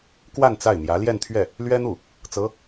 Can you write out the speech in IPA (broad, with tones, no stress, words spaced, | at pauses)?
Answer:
kwa˥˧n t͡sa˥˩ɪ̯n̪jä˧˥ ljɛ˥˧nt̪ʰɥɛ˥˩ | lɥɛ˥n̪u˥˩ | t͡sɤ˧˥